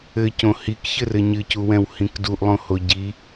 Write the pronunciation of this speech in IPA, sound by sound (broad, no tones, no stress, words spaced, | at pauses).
ɘcõ hikçɘrɘ ɲɨcuwɛ̃whĩk duʔlˠõho ɟi